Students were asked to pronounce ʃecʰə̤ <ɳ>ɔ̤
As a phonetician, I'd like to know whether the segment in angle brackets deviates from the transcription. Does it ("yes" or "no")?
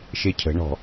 no